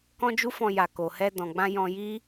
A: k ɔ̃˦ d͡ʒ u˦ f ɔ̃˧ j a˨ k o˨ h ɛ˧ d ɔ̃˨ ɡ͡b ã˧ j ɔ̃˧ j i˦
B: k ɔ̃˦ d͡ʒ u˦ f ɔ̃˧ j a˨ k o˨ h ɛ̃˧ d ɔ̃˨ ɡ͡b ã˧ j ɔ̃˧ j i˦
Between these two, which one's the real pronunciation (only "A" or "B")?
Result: A